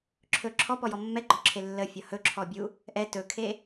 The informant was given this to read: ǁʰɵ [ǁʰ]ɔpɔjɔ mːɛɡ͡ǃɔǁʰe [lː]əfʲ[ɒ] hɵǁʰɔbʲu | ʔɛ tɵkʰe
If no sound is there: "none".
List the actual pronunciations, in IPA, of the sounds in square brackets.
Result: ǁʰ, lː, ɒ

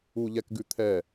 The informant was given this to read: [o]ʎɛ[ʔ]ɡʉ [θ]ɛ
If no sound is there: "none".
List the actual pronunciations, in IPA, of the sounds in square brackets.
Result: u, k, t̪ʰ

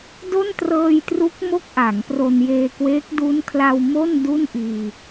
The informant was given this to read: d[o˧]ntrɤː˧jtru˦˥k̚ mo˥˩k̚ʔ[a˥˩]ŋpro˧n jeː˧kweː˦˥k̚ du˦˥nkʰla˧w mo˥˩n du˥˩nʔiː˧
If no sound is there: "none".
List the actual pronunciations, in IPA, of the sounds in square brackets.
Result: o˥˩, a˩˦

